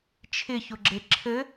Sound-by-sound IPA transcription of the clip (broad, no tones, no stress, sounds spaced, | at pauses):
t͡ʃʰ ɪ ç ʊ ɡ͡ǁ e ǁʰ ɘ